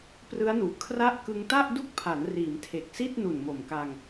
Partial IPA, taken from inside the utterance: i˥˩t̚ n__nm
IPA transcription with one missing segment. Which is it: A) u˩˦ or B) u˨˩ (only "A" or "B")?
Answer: B